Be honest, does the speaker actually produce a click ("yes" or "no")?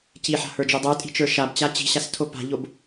no